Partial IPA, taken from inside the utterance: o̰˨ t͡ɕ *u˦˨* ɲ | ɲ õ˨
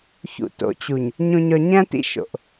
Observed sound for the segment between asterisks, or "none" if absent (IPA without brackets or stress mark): u˨